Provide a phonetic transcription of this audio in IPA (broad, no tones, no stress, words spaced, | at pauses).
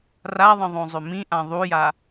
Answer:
raðˤə̃ ðˤõzˤʏmĩʔã ðˤuja